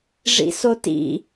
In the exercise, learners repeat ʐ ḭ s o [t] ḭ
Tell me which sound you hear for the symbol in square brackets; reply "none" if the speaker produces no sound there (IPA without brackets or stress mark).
t